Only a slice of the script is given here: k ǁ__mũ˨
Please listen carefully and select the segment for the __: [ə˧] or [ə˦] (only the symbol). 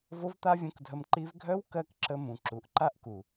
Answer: ə˧